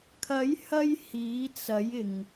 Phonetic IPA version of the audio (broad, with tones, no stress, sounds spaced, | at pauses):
kʰ ɐ˨˥ j h ɐ˧ j h iː˨˥ t͡s ɐ˨˥ j ɪ˨ ŋ